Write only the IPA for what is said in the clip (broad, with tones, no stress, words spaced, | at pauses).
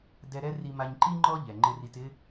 dɛ˧ɾɛ˥ ri˧ma˧ɲ ǃi˥ ŋ͡ǃɔ˥ʎɛ˩ ŋ͡ǃɪ˧ri˧tɪ˥